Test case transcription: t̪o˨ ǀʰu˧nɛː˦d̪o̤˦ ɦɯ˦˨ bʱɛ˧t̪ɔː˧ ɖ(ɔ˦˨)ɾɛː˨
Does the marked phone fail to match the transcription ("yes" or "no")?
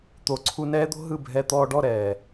no